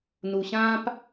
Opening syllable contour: low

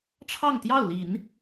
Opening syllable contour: falling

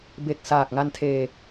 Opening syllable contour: low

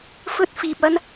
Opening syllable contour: high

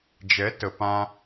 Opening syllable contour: rising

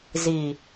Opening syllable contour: low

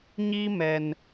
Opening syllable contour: high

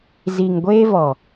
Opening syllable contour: low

